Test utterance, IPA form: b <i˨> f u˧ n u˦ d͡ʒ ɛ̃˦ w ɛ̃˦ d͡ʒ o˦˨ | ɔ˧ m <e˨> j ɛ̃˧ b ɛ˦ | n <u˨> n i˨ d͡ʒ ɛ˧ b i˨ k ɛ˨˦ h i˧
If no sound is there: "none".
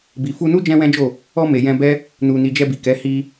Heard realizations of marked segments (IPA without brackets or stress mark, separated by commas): i˨, e˨, u˨